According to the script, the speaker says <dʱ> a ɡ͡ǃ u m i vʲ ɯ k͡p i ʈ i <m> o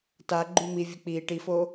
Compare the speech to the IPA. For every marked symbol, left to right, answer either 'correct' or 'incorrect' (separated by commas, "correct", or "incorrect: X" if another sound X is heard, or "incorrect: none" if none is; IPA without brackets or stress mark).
incorrect: t, incorrect: f